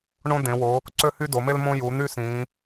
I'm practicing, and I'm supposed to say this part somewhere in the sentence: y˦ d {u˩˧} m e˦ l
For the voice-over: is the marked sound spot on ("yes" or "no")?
no